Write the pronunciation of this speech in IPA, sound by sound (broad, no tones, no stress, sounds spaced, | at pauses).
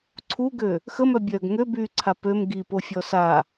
ǀʰ u ɡ ø | x ə m œ bʲ œː ɡ ŋ ø b yː ǀʰ a p ø m ɡ i p o fʲ ɔ s a